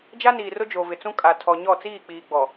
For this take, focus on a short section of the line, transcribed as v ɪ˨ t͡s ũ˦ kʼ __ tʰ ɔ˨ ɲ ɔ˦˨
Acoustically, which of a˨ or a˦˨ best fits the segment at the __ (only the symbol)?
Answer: a˨